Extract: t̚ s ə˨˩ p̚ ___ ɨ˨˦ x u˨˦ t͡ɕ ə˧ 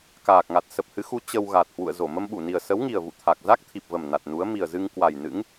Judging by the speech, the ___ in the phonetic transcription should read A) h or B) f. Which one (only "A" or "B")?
A